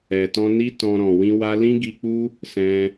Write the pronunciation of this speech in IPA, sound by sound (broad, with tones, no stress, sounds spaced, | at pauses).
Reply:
ɛ˨ t ɔ̃˧ n i˦ t ɔ̃˧ ɾ ɔ̃˨ w ĩ˧ w a˧ l ĩ˦ ɡ i˧ k͡p u˦ | s ɛ̃˧